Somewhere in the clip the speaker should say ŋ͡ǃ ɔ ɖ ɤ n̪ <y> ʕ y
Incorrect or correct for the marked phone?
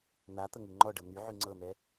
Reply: correct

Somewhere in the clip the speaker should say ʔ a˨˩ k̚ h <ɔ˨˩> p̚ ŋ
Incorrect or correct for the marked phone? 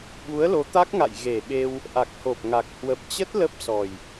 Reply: incorrect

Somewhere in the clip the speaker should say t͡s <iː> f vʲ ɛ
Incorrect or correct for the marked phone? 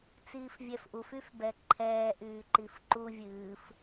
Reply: correct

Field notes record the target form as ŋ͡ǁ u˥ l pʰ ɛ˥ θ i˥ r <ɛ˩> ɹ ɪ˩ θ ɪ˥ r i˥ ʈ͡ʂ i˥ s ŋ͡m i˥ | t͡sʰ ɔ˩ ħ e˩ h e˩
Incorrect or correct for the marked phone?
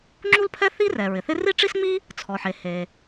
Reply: correct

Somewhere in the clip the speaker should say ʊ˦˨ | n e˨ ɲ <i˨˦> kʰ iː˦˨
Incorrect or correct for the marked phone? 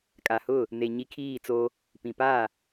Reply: correct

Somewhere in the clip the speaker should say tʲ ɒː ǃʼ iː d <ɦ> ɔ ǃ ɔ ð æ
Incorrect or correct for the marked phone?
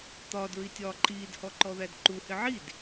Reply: incorrect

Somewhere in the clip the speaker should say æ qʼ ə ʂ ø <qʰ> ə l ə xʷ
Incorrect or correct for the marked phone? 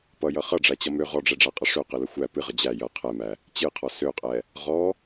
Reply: incorrect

